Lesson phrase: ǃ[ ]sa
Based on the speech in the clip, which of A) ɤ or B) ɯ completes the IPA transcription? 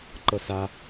A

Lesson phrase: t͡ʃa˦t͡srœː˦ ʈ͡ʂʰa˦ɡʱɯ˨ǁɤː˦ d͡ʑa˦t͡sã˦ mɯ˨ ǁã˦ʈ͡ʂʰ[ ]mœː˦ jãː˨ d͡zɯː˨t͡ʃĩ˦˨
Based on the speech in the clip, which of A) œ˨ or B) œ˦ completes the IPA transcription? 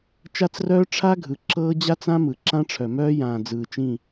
A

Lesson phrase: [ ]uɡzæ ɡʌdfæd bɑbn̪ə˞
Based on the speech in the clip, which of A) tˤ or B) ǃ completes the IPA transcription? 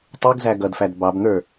A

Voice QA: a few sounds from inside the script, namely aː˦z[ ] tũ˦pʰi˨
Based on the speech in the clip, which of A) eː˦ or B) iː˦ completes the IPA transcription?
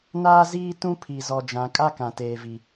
B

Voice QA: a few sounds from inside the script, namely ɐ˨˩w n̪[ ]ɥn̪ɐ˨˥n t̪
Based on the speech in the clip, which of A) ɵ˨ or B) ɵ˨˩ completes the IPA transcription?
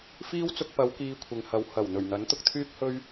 B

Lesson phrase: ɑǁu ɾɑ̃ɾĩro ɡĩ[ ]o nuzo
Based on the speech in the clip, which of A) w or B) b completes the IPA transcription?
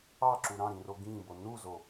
B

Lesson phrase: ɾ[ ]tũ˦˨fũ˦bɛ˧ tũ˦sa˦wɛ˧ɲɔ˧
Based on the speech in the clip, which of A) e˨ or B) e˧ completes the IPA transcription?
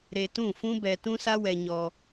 B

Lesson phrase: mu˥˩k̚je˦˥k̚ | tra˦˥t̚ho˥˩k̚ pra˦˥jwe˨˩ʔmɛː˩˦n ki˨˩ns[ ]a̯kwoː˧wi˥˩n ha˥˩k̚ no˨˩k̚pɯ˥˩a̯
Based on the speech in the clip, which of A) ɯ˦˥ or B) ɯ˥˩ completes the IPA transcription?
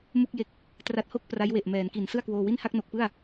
B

